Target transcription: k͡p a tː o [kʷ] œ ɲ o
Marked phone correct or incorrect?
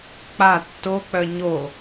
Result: incorrect